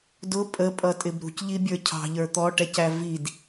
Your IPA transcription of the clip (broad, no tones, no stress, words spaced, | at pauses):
dʊ pʼəpʼʌtʼɪb ɾṳcʎibʲə˞ cʰɑ̤ʎə˞ t̪ɔʈɛcæ vid